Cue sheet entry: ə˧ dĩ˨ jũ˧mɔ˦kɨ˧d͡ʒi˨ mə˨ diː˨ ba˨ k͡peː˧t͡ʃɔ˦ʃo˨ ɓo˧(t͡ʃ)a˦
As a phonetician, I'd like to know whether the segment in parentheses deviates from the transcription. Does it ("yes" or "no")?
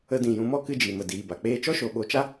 no